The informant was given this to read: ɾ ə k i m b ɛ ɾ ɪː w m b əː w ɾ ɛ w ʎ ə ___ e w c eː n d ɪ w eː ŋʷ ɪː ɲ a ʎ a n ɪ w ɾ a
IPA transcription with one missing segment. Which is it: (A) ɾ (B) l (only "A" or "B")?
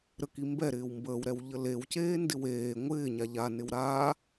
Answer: B